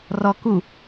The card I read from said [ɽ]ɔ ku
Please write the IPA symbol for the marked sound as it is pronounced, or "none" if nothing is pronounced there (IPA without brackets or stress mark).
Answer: r